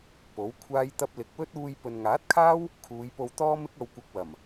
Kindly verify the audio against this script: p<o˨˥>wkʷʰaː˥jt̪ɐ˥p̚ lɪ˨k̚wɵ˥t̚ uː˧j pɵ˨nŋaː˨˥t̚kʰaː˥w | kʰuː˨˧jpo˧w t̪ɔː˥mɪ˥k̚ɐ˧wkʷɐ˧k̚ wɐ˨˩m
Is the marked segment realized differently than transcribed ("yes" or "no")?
no